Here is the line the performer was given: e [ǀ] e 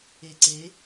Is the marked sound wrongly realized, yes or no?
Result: no